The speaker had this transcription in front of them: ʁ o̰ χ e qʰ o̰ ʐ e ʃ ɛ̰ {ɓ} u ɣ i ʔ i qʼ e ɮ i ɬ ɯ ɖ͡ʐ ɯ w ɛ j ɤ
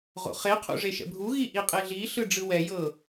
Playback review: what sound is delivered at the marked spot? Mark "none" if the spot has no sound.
bʱ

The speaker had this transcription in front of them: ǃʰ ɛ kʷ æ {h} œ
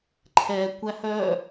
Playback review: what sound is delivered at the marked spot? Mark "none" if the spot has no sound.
h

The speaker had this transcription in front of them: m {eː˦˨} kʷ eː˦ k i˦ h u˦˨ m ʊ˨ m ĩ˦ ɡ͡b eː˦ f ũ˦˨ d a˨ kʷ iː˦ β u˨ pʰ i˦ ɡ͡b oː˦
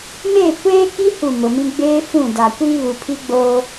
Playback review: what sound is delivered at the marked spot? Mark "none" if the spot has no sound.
eː˦˨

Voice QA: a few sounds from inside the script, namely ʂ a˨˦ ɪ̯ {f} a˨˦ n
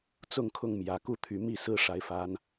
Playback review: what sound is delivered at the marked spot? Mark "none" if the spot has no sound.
f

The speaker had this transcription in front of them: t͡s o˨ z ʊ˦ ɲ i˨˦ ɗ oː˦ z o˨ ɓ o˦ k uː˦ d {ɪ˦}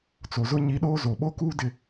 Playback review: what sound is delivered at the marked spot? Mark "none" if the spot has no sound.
ɪ˦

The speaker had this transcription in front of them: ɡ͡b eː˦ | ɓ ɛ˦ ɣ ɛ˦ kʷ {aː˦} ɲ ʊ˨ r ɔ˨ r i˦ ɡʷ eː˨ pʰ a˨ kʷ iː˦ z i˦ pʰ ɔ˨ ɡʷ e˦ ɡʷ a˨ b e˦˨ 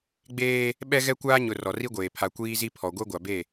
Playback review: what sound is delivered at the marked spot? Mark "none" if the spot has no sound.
aː˦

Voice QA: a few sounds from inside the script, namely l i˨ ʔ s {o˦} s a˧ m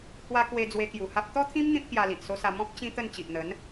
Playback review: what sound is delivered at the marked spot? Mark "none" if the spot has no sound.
o˦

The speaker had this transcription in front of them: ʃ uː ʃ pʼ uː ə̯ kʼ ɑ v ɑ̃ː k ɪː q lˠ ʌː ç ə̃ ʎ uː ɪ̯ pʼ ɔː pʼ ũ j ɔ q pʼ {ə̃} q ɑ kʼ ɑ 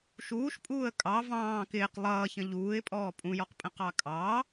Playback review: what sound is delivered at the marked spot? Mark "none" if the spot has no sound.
ə̃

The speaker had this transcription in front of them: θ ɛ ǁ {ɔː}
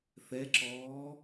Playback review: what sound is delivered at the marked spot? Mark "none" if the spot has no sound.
ɔː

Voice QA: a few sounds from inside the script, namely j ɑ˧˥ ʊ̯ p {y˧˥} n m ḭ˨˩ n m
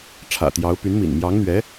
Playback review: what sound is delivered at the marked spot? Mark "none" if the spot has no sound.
y˧˥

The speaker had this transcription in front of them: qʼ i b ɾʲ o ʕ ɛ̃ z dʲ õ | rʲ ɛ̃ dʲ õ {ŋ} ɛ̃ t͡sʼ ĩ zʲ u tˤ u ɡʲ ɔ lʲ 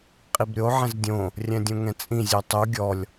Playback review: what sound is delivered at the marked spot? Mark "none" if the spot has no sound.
ŋ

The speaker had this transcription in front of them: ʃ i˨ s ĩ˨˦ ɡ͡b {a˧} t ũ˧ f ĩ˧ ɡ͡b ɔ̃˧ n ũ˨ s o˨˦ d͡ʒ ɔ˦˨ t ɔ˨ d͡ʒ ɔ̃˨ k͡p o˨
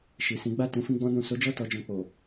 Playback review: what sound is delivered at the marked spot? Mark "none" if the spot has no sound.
a˦˨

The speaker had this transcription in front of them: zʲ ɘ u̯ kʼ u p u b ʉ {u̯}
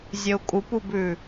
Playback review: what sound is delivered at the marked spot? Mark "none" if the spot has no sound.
none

